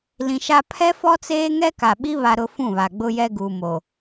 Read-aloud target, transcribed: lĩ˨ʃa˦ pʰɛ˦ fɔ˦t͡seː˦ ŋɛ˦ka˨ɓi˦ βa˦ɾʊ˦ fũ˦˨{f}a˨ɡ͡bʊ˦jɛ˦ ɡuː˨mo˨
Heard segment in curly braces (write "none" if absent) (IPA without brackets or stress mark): β